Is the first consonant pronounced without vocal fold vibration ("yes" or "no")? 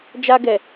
no